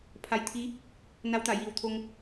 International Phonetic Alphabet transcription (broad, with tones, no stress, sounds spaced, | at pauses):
pʰ a˧ j t̪ʰ i˧˥ | n a˧˥ w t̪ a˧˩ j iː˧˩ w t̪ʰ o˧ ŋ